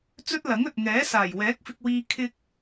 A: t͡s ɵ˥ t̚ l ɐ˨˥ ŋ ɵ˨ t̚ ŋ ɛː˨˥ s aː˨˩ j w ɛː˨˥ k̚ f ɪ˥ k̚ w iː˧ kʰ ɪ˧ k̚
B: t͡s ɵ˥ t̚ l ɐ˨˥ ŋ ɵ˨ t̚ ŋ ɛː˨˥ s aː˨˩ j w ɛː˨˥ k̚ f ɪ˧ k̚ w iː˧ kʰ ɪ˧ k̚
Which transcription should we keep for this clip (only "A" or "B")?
B